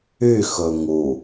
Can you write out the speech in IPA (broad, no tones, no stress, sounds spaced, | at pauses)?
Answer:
y x ɵ ŋ u